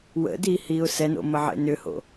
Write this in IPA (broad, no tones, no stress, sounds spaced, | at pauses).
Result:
w ə̰ d i h i ʊ̯ s ɛ n o̰ m ə ʕ ḛ n ʏ h o̰